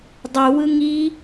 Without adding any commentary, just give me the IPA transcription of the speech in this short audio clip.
dˤuwɯ ŋi

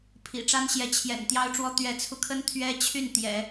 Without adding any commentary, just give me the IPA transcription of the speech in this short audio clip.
pʰḭ˨˩ʈ͡ʂa˥nɕjɛ˧˥ t͡ɕʰjɛ̰˨˩n t̪jɑ˥ʊ̯ʈ͡ʂwɔ˥ t̪ɥɛ˧˥t͡sʰu˧kʰə˥n t̪ʰɥɛ˥ t͡ɕʰy˥˩n t̪jɛ̰˨˩˦

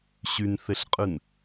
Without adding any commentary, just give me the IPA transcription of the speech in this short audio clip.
ɕynθeɬqʼɨn

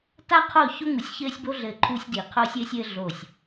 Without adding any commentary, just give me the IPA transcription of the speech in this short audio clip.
ta˦qʰo˦˨ ço˦ŋu˨sʲçɘː˦sʲbo˦ ɮɘː˦˨ǃʰuː˦sʲdiː˨ qʰoː˦sʲɘː˦sʲɘː˦ ɮo˦˨sʲ

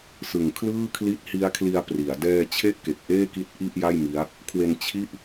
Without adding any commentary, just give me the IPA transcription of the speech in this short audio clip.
sɯ˨˩ŋkʰlɯː˥˩ kʰli˦˥t̚hi˦˥a̯ kʰli˧a̯pri˩˦a̯ dɛː˧ t͡ɕʰe˥˩ʔke˨˩k̚ ʔeː˥˩ki˦˥t̚ ʔi˥˩ʔja˥˩j mi˦˥a̯ | kʰwe˧n t͡ɕʰi˥˩ʔ

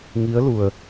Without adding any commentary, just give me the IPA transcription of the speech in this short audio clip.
ŋi˧˥ə̯lu˩ə̯

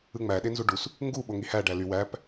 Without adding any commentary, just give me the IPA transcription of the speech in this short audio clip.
ɯŋ͡mæ ɗenzuɖus | ŋɡu ɓoŋihæ ɖæly wæp

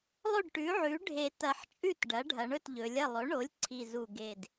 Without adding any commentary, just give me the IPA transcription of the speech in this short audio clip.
lˠɵ˥˩ɖʈʉ˩˥ʕʉ˩˥ ɖʱe˨˩ tɐ˨˩ħ t͡ʃʼʉ˥˩t ɖɐ˩˥ɖʱɐ˩˧ɳɵ˥˩t ʎɵ˩˧lʲɐ˥˩ lˠɵ˩˥ɳo˩˥lʲ ǀʰi˨˩zu˨˩ɡe˨˩d

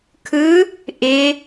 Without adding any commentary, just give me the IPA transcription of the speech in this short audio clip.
kʰɯ | ʔɪ

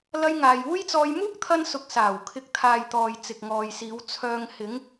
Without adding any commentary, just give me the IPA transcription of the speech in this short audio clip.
lɐ˧jŋaː˨juː˥jt͡sɔː˧j muː˥k̚t̪ʰɐ˧nsʊ˨k̚ saː˨˩w kʰɪ˨˥k̚t̪ʰaː˨jt̪ɔː˨j t͡sɪ˨k̚ŋɔː˨jsiː˨˧w t͡sʰœː˨ŋhɪ˨˧ŋ

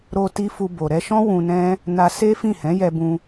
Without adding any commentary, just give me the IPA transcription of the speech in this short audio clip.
ɾo˧ ti˦fu˧bo˨ ɾɛ˧ʃɔ̃˦ wũ˧nɛ̃˦ | na˧ se˦fĩ˦˨hɛ̃˨˦jɛ˧ bũ˧

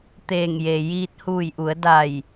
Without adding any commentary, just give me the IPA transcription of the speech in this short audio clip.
t̪eː˧˩ŋje˩ jiː˧t̚huː˧˩jʔu˩˧ə̯ da˧˩j

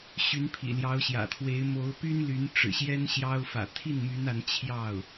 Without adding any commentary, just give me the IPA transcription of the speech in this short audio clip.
ɕy˧˥npʰḭ˨˩ljɑ˧˥ʊ̯ɕjä̰˨˩ t̪ʰwe˧˥ɪ̯ mo˧˥ʊ̯py˥nly˧˥n ʈ͡ʂɻ̩˨˩ɕjɛ˥n ɕjɑ˥ʊ̯ fä̰˨˩t̪ʰi˥˩nmy˧˥n a˧˥nt͡ɕʰjɑ˥˩ʊ̯

